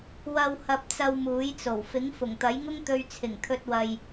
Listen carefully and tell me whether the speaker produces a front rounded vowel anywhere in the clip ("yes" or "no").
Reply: no